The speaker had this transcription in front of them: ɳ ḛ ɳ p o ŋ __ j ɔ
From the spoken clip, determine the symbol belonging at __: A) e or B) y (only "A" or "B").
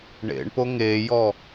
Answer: A